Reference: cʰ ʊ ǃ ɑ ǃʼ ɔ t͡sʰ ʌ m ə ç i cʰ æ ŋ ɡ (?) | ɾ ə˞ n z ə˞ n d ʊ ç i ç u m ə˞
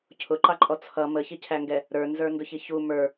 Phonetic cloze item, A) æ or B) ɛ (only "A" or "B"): B